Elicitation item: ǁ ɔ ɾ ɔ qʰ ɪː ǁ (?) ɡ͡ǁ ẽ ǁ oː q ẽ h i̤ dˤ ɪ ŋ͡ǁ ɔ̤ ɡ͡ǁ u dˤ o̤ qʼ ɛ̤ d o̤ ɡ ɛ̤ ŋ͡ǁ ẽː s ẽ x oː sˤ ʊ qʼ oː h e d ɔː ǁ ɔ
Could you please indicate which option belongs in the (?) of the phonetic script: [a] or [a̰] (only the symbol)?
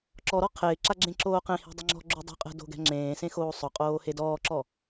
a